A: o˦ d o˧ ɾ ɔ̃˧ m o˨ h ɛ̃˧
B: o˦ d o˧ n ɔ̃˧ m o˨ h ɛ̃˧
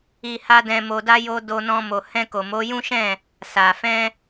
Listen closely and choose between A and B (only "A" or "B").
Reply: B